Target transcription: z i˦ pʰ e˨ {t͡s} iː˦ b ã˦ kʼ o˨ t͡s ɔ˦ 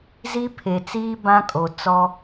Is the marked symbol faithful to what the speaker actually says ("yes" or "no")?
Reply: yes